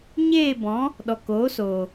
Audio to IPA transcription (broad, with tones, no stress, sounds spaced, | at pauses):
ɲ eː˦˨ b ɔ̃˨˦ | ɗ ɔ˨ k oː˨˦ s oː˨